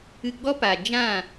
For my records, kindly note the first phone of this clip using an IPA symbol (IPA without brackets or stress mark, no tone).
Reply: ɨ